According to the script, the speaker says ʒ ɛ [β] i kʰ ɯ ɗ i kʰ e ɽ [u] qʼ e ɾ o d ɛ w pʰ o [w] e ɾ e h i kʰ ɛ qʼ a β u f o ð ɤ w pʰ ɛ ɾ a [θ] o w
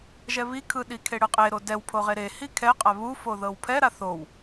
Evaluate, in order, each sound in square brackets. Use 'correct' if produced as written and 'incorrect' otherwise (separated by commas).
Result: correct, incorrect, incorrect, correct